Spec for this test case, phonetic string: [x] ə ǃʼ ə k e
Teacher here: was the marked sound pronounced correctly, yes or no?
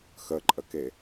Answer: yes